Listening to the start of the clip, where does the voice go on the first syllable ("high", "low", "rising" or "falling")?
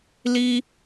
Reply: high